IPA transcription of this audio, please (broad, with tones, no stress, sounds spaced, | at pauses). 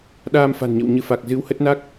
ɗ aː˧ m f a̤˨˩ n ɲ ə̰˧˨ w ɲ ɨ˨˦ f a˨˩ k̚ z ɨ˨˦ w h ə˦˥ t̚ n a˦˥ k̚